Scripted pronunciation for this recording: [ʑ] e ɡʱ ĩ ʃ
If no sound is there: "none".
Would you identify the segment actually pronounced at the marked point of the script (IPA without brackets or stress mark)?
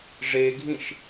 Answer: ʐ